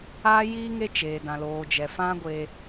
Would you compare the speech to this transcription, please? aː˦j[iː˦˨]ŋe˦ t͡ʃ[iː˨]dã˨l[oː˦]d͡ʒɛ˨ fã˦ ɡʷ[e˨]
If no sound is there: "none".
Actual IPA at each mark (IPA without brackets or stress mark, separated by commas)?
iː˦, eː˨, oː˨, e˧